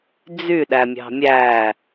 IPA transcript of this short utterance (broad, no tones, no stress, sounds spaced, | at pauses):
d͡z y ɗ æ mʲ ɑ̤ mʲ æ